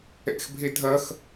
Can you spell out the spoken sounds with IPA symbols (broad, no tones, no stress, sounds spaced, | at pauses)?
ɛ̰ x bʱ e dʱ ɐ x